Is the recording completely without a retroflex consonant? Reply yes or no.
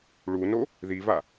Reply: no